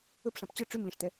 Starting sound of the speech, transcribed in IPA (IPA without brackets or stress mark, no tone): ɵ